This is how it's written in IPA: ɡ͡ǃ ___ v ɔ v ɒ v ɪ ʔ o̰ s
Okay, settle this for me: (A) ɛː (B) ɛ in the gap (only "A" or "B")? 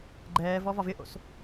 A